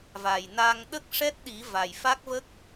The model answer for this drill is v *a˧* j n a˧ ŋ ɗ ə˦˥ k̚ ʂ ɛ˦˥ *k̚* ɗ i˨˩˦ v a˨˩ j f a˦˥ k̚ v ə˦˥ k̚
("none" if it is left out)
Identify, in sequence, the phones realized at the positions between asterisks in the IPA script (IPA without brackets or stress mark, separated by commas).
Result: a˨˩, t̚